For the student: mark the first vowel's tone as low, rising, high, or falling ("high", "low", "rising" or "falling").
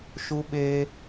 high